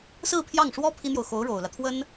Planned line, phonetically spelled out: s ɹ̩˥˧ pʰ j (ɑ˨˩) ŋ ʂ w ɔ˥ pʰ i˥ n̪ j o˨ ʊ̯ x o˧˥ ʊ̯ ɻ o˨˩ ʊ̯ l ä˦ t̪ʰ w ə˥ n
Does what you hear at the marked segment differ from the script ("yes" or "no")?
yes